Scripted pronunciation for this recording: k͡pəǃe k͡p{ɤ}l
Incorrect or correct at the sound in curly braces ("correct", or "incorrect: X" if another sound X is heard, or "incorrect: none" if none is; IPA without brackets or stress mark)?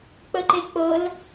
correct